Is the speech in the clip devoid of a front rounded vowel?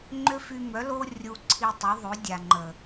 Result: no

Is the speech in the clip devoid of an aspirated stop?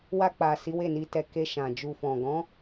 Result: yes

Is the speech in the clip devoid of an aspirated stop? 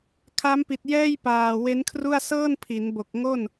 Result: no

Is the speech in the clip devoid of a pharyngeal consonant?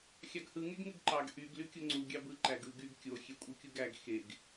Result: yes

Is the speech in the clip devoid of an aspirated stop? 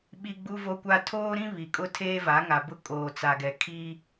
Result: no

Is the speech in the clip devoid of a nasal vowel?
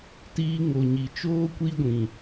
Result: no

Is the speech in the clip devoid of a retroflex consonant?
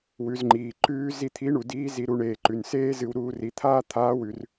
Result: no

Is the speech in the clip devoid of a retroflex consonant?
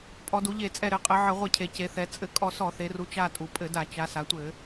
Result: yes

